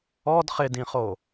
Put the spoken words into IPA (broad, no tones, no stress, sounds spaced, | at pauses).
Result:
ɔ d χ ɪ d ĩ χ o